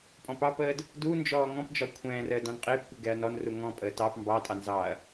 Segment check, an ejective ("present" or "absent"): present